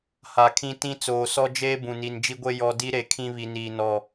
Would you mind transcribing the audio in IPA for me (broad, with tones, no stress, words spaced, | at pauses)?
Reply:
ha˨kʰĩ˦ tĩ˦ t͡soː˨sɔ˦d͡ʒeː˦ bũ˨ni˨n d͡ʒi˦ɡʷe˦ jɔ˨di˦ ɾe˨kʰĩ˦βi˨niː˨ nɔ˨